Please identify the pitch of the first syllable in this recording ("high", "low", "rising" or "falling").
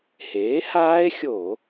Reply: rising